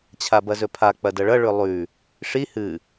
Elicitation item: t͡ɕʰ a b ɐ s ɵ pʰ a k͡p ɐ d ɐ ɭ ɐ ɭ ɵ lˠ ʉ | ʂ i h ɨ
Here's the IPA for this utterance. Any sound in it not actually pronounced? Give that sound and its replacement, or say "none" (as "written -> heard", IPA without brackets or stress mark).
s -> z